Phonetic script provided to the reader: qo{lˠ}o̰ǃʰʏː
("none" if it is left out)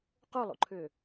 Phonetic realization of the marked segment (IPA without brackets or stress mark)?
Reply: lˠ